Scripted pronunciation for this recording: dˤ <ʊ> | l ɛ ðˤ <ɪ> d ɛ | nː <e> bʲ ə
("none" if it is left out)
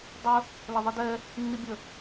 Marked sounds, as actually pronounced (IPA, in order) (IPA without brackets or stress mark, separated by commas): ə, i, i